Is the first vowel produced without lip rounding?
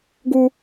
no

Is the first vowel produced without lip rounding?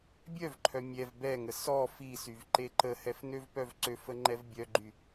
no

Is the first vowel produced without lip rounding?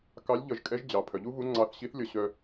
yes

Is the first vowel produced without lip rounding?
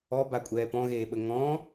no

